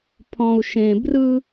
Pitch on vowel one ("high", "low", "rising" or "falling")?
low